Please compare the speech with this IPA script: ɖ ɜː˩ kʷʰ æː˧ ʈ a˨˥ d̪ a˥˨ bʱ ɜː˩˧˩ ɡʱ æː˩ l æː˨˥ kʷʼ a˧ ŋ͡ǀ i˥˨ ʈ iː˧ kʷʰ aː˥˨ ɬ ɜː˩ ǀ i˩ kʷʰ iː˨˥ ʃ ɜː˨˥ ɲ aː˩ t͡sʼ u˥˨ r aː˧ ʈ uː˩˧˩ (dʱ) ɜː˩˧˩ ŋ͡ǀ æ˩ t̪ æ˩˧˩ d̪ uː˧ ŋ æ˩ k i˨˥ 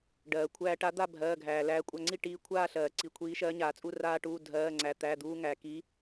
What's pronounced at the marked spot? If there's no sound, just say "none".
dʱ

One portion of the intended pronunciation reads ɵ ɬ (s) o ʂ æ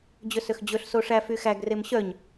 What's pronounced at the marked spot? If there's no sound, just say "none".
s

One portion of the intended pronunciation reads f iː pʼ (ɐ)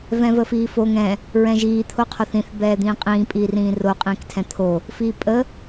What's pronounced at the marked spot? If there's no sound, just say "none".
ə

